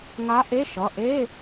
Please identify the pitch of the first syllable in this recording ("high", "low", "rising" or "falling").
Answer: rising